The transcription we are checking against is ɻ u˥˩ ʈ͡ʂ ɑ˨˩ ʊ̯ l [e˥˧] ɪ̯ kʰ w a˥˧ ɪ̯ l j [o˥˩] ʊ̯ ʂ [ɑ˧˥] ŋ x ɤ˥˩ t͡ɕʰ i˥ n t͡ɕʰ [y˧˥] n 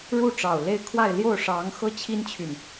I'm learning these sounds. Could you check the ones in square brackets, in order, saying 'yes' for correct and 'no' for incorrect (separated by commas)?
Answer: yes, yes, yes, no